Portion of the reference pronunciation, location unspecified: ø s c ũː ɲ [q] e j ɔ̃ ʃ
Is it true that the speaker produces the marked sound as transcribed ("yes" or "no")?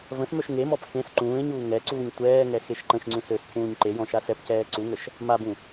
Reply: no